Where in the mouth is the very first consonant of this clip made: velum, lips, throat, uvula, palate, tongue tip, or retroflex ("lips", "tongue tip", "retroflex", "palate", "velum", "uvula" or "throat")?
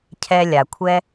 palate